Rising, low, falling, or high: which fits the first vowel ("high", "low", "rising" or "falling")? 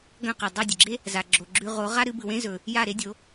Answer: falling